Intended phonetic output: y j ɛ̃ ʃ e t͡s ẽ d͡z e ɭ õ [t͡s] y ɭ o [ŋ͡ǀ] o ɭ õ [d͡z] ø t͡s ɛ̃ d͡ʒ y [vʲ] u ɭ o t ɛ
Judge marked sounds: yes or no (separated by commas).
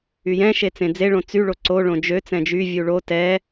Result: yes, no, no, yes